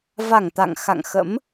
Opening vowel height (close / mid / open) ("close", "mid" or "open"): open